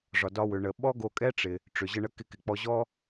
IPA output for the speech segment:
ʐɒ˩dɒ˧wʏ˩ɳə˩ ɓɔ˥ɡo˧kʼɛ˥ ʈ͡ʂɪ˩ | ʈ͡ʂʏ˩ʑə˧ɳə˧kɪ˧ kɪ˩k͡pɔ˧ʑɔ˥

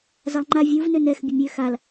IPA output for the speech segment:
zalˠŋ͡ǃa vʲuv nønɛx bʲəmʲø xal

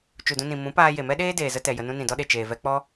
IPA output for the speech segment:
t͡ʃu˨dũ˧nĩ˨ mũ˨˦paː˧ je˨mɛ˦ɗeː˦ deː˨zə˦tɛ˨ jə˧nũ˦ nĩ˨dɔ˦ɗe˨ t͡ʃeː˨vɛ˧k͡pɔ˦

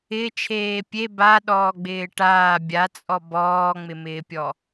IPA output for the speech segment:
ɪ t͡ʃʰeːpʲe ba ɗɔːɡ͡bɪːʈaː bʲat͡sʼɔ bɔːŋ͡mɪmɪːpʲɔ

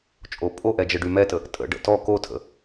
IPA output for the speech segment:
t͡ʃʼopʼoʔɛ d͡ʒəɖymɛtə | tʼə̰ɖə̰ tɔ kotʰə̰

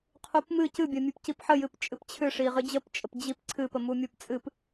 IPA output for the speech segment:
qʰupmɨ cɨbʲə mʲɨpcipħəjɨp t͡ʃʼɨpt͡ɕʰɨ ʂiʁɨd͡ʑəpt͡ʃʼəp d͡ʑip ǀʰɨp əmumʲupt͡sʼɨp

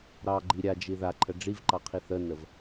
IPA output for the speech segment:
ɾɑɡ͡ǃi ɾʲad͡ʒi ðaǃʰə ɖ͡ʐivǃɑqʰi θənəv

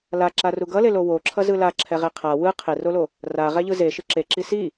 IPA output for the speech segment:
laǁaru ɡʌle lowo ǁʰʌzɯla ǁʰɛʁeqʰa wɯ qʰerolo | ra ʁɛʎɯze ʃɯǁeǁi si

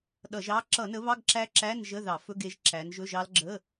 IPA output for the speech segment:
ɗʌ˧˩˧ʒɑ˦˥ ǁʌ˧˩˧nə˨˦βɑ˧˥˧ɡ ǁæ˦˥ǁæ˧˥˧n ʒə˧˥˧ðɑ˧˩˧fɵ˧˥˧ɡe˨˦ʒ ǁæ˨˦nʒɵ˧˥˧ʒɑ˦˥l ɡ͡ǁə˧˥˧

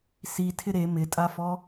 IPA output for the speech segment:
sitʰɪ ɾe mɪtʼafɔ

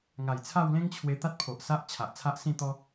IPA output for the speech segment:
ŋa˨˩jt͡sʰa˥˧w lẽ˦ŋt͡ɕʰwe˧t̪a˦t̚pʰo˨ʔ sa˦ʔ t͡ɕʰa˨ʔt͡sʰa˦ʔ sĩ˥˧t̪ɔ˦

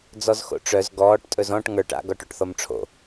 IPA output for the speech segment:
d͡zɔzxo̰ʈ͡ʂœz ɡɔːʈ tʼɵzɔ̃ʈ ŋə˞ʈ a̰ ɡɔʈoʈθɔmʈ͡ʂʰo̰

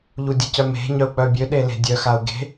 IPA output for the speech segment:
ʎudʲəcœme̤ ɲœu̯k͡pœbʲø ɗele̤dʲœ xau̯ɡe̤

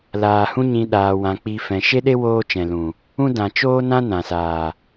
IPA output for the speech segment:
laː˨hũ˦ɲĩ˧ ɗaː˧wã˧ k͡pi˧ fɛ̃˧ ʃe˦ɗe˦ woː˦t͡ʃɛ̃˨lũ˨ | ũ˦ dã˨t͡ʃoː˦nã˦ nã˨saː˨

